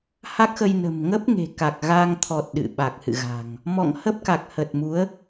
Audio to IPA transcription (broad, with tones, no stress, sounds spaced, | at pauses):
h a˦˥ k̚ x ə˧ j n ə̤˨˩ m ŋ ə˦˥ p̚ ŋ e̤˨˩ k a˨˩ k̚ ɣ a˧ ŋ t̪ʰ ɔ˨˩ t̚ ɗ ɨ̰˧˨ ɓ a˨˩ k̚ h ɨ̰˧˨ ɣ a̤˨˩ ŋ | m ɔ̰˧˨ ŋ h ə˦˥ p̚ k a˨˩ k̚ h ə˨˩ t̚ m u˨˦ ə̯